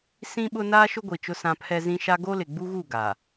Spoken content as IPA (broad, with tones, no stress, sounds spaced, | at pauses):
s ĩ˦ ɓ ʊ˦ n aː˦ ʃ ʊ˦ ɡʷ i˨ t͡ʃ ʊ˦ s ã˦ pʰ ɛ˦ z ĩ˦ ʃ a˦ ɡ o˦ l ɪ˨ ɡ͡b u˦ ɣ u˦˨ ɡ aː˨